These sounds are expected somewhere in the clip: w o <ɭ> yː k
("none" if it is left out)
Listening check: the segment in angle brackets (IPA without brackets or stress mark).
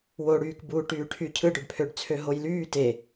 ɽ